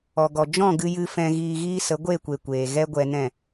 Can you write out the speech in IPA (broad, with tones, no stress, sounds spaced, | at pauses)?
ɔ˨ ɡ ɔ˨ d͡ʒ ɔ̃˦˨ ɡ ɨ˧ j ɨ˧ f ɛ̃˧ ɣ iː˧ ɣ iː˦ s ə˨˦ ɡʷ e˦˨ kʷ e˨ kʷ eː˨ ɣ ɛ˦ ɡʷ ɛ˧ n ɛ̃˦˨